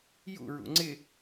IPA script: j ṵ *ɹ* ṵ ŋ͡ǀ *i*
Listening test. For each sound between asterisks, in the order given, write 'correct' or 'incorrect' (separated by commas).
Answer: correct, incorrect